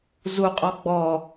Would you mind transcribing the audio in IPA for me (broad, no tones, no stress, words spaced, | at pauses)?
zuqʼɔ ɡ͡bɔ